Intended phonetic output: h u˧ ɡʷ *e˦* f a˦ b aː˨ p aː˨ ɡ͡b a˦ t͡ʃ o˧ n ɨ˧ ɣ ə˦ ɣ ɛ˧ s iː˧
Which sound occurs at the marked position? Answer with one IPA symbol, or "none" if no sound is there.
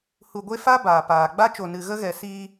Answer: e˦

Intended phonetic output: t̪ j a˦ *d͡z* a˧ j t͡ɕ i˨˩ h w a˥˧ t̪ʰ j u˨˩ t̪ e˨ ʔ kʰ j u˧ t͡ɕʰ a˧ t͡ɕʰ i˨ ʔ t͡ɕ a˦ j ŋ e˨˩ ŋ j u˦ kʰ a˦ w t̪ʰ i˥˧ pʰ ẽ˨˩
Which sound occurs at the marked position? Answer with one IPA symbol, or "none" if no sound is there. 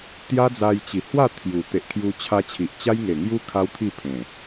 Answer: d͡z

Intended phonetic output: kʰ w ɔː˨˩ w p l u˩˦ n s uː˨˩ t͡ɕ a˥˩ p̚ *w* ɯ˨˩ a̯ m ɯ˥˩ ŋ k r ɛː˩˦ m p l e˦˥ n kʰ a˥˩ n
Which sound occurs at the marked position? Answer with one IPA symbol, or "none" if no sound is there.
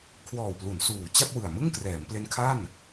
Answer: w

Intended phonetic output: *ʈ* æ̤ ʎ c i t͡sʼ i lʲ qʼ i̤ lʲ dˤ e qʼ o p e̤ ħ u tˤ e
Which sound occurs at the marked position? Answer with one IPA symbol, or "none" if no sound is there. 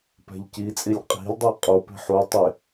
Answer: p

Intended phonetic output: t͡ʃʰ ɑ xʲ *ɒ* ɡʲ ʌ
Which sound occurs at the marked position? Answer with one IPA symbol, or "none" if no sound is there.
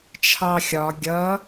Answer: ɒ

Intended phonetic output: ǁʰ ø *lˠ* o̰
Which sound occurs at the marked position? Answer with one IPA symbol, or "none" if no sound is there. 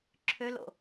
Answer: l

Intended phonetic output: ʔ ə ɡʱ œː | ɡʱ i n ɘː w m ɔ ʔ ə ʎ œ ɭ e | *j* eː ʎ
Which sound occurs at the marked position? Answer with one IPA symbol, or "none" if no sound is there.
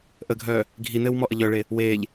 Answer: w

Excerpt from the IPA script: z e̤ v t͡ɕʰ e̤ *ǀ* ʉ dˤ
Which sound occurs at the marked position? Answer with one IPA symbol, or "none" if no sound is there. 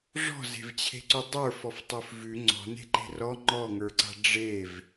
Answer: ǀ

